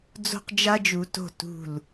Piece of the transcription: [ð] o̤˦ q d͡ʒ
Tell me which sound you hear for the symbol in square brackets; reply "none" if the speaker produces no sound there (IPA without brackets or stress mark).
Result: d͡z